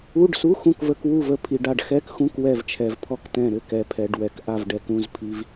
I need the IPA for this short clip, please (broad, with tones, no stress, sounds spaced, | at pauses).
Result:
u˧˥˧ ɖ s u˧˥˧ x ũ˦˨ k v ə˧˥˧ k w u˦˨ v ə˨ pʰ i˨ ɖ a˦˨ ɖ x ɛ˧˥˧ k x ũ˧˥˧ k w ɛ˦˨ v t͡ʃʰ ɛ˨ v pʰ ɔ˦˨ k t ɛ̃˦˨ ɾ ʏ˦˨ k ɛ˨ pʰ ɛ˨ ɖ w ɛ˨ k ʔ a˦˨ v ɖ ɛ˨ k ũ˧˥˧ z pʰ i˧˥˧ v